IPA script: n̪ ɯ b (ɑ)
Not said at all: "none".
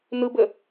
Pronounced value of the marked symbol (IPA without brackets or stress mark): ə